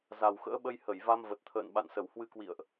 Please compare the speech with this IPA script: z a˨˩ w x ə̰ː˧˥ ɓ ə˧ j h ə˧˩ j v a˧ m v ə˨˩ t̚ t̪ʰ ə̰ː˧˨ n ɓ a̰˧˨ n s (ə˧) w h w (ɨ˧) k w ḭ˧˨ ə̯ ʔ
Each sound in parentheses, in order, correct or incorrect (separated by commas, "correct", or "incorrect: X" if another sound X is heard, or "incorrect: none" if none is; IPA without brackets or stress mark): incorrect: ə˧˩, correct